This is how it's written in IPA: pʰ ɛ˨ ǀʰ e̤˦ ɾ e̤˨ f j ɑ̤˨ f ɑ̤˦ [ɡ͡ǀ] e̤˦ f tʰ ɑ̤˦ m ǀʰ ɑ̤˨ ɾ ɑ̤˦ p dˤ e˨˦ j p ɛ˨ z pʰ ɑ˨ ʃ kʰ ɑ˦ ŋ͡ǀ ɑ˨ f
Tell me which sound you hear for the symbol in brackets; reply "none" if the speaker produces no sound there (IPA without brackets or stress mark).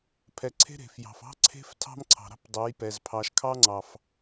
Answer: ǀʰ